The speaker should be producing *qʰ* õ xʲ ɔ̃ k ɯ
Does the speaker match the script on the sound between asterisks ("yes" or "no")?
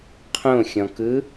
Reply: yes